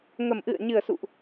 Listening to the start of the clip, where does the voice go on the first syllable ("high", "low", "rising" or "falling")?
low